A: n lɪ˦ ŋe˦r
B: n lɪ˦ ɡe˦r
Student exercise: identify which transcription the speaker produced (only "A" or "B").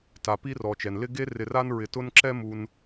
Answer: B